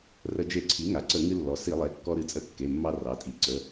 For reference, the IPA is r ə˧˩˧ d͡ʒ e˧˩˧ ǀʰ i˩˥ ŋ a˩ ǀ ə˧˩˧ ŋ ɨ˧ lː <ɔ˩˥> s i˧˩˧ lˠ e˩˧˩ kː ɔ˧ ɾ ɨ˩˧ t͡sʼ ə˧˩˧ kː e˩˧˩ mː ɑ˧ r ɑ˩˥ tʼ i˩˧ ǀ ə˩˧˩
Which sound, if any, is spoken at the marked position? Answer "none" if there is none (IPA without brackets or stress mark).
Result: ɔ˩˧